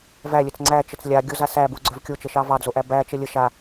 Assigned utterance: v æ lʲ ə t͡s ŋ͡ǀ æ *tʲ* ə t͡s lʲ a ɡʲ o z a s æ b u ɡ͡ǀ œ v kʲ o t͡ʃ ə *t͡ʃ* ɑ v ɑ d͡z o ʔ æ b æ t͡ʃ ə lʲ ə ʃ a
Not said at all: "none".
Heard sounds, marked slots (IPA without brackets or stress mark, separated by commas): t͡ʃ, ʃ